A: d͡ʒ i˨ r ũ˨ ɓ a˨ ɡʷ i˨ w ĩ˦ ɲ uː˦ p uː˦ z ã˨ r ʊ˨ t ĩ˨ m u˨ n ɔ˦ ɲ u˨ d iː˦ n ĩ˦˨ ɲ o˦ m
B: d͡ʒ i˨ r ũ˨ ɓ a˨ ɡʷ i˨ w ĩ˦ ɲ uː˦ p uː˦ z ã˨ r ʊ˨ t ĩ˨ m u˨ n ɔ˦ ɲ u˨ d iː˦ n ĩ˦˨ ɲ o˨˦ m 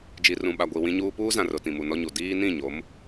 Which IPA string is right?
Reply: B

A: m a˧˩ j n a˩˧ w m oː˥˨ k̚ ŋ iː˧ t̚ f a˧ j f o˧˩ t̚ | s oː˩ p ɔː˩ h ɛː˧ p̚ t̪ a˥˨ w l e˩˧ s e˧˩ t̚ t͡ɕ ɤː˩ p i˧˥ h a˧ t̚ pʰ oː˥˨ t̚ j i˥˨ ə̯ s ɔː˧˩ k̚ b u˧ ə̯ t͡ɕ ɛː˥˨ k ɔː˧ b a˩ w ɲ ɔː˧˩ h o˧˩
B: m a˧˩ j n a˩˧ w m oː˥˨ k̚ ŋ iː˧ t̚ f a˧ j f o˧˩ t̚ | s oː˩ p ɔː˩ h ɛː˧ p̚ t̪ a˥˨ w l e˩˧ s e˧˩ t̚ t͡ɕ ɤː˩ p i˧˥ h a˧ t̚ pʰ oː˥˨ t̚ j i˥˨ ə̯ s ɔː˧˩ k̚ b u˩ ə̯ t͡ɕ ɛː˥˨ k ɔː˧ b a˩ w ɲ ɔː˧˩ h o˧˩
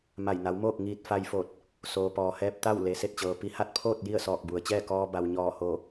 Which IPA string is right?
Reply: B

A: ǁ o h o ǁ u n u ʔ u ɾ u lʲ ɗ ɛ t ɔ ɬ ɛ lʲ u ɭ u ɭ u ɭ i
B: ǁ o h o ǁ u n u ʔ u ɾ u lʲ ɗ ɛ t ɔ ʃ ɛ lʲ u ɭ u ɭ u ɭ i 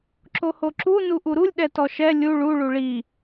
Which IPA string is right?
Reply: B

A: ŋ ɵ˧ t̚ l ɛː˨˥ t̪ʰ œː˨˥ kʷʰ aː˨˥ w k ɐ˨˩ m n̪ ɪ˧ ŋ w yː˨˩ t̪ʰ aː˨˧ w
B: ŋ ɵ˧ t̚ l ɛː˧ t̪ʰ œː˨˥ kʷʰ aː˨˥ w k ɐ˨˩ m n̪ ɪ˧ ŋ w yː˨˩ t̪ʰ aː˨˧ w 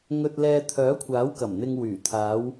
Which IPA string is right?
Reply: B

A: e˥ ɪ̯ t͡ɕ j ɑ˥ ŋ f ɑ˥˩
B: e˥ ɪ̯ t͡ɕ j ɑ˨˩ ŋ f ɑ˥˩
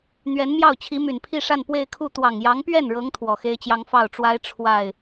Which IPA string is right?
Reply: A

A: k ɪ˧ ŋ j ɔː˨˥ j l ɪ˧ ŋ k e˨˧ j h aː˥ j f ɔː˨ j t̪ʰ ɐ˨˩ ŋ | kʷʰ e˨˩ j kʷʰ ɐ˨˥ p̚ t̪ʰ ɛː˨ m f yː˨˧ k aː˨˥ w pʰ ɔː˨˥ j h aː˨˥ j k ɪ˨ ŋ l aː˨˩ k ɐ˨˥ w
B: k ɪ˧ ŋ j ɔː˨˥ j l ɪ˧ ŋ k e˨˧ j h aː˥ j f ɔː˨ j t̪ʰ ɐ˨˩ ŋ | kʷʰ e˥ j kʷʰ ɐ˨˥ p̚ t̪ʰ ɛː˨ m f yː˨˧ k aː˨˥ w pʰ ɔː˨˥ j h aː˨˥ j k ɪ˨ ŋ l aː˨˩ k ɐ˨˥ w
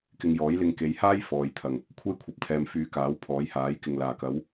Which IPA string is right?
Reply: B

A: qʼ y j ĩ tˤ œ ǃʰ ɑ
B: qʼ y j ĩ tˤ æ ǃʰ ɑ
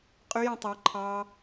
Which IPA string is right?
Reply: B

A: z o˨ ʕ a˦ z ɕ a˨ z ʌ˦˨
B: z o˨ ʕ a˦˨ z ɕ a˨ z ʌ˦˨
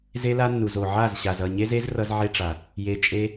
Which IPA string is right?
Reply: B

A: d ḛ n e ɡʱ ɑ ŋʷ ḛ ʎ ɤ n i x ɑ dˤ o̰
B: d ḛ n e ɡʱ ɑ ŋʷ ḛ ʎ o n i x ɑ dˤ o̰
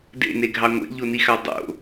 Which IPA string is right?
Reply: B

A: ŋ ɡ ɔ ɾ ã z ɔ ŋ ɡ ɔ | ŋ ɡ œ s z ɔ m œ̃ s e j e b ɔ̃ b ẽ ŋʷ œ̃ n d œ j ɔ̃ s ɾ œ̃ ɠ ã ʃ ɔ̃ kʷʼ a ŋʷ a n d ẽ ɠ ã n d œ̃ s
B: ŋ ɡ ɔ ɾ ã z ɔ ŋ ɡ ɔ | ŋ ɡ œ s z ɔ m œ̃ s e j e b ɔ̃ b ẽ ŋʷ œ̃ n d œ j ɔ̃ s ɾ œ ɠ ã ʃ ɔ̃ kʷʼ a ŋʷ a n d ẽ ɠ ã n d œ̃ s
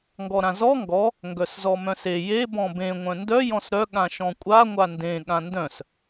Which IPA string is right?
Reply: B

